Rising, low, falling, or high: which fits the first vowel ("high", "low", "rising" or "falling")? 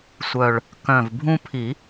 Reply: low